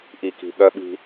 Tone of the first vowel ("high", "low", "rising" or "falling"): low